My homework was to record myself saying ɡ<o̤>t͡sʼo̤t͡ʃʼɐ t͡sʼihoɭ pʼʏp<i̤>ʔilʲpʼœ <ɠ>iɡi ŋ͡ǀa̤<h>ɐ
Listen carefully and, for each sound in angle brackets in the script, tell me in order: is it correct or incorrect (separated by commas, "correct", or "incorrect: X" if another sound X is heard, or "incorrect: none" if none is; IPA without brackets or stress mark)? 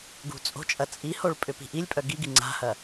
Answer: incorrect: ṳ, correct, incorrect: ɡ, correct